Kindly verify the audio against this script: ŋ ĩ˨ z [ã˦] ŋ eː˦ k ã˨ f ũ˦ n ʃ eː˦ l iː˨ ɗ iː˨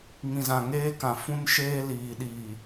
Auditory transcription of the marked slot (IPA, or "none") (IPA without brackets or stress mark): ã˨